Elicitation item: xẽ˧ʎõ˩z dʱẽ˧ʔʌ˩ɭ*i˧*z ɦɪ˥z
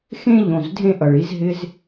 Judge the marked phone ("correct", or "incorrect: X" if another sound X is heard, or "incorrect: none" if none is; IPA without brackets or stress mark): correct